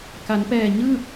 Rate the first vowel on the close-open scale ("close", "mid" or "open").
open